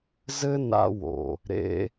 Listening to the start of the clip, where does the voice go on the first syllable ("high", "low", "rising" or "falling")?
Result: high